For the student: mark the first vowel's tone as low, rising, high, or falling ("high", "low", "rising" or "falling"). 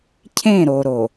falling